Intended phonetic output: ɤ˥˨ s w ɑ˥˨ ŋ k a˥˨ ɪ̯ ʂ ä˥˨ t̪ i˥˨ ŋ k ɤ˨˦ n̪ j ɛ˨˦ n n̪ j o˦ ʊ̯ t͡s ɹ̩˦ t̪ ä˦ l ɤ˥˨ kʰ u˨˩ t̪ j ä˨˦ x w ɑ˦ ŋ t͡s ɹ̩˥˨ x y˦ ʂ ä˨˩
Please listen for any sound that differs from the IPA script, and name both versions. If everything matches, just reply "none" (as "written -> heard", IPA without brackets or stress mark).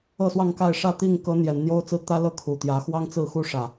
y˦ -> u˦